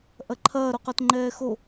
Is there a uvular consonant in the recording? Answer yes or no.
yes